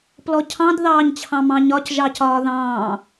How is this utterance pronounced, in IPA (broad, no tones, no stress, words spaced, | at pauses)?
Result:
plɔcʰɑ̃d ðɑːɲt͡ɕʰɑ̃mɑ̃ɲɒc ʒɑcɒːðɑ̃ː